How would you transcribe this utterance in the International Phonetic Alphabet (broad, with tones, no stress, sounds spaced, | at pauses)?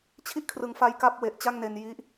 t͡ɕʰ i˥˩ ʔ kʰ r ɯ˨˩ ŋ f a˧ j k a˦˥ p̚ w e˨˩ ʔ t͡ɕ a˥˩ ŋ n e˧ n j i˦˥ ʔ